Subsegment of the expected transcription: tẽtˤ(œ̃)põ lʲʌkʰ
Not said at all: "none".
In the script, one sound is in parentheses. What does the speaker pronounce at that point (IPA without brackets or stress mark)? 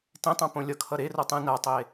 œ̃